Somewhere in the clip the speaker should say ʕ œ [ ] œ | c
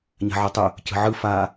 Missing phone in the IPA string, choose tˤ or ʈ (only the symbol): tˤ